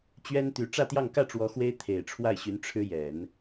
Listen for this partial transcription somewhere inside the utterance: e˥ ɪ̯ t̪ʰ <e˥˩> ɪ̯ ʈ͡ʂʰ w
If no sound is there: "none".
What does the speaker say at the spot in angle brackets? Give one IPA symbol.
e˨˩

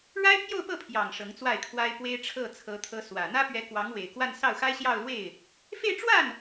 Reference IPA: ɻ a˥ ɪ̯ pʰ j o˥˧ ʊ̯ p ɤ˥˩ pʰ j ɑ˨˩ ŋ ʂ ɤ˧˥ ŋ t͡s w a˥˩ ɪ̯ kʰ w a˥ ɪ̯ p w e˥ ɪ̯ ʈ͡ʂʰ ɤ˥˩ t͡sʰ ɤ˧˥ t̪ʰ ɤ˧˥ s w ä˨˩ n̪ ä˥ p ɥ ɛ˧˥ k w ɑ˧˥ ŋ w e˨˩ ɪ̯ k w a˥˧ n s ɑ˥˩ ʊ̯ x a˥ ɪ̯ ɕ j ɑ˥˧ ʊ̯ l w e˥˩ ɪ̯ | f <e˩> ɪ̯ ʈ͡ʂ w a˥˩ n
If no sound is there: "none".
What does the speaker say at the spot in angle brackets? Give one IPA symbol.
e˥˧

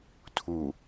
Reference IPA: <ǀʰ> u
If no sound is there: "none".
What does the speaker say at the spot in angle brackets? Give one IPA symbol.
tʰ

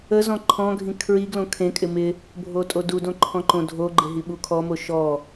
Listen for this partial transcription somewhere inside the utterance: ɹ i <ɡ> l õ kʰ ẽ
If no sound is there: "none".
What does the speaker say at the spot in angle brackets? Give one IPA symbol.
ɡ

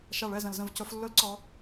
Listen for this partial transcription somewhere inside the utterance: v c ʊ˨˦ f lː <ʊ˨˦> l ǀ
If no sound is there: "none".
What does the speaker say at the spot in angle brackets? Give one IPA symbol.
ʊ˦˥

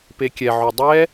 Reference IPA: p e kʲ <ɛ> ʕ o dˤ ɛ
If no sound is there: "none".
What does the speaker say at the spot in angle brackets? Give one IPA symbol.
ɛ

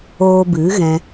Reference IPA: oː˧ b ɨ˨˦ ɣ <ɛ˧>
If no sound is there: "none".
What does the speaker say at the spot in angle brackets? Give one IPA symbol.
ɛ̃˧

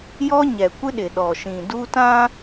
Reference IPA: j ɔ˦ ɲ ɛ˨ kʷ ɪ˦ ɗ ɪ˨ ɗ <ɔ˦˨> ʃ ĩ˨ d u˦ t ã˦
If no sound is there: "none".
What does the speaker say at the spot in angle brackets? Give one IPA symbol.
ɔ˨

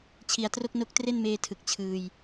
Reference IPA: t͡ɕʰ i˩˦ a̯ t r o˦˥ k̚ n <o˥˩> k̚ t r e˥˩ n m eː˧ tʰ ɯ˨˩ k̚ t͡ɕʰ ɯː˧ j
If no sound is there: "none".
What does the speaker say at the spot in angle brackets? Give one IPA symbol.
o˦˥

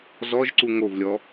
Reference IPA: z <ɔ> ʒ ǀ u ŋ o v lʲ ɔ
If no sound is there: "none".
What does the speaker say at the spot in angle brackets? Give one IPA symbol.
ɔ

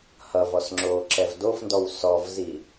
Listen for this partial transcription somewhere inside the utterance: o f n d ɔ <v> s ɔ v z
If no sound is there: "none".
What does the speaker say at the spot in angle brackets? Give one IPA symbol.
w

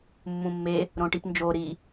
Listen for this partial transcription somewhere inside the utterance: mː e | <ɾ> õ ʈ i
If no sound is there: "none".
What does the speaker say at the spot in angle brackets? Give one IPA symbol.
ɾ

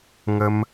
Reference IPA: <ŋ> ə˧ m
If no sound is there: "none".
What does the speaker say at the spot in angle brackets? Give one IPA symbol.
ŋ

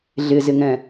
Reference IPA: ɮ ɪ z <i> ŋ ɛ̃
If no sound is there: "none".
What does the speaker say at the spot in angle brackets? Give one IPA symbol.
ɪ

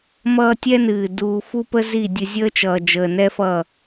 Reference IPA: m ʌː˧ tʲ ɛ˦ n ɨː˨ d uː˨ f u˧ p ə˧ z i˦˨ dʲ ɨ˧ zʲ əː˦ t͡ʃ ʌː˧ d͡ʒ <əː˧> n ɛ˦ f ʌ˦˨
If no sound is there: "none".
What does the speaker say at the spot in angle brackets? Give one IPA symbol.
əː˧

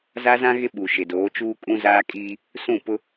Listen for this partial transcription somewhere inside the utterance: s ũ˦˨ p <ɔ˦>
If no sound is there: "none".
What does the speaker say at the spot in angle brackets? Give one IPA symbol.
ʊ˦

